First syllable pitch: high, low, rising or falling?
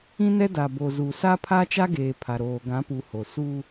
high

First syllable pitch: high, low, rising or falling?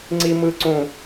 high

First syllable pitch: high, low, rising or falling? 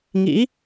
rising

